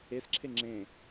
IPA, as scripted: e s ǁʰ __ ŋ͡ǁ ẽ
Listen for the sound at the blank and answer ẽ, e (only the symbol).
e